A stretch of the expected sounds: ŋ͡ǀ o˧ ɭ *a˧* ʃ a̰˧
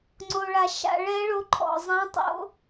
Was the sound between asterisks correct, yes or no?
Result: yes